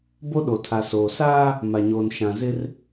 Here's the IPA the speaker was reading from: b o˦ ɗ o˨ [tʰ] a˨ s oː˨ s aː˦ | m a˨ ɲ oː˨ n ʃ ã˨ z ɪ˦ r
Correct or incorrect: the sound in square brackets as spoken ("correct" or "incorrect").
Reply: correct